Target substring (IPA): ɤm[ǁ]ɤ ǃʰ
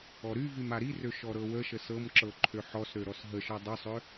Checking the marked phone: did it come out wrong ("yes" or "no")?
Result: no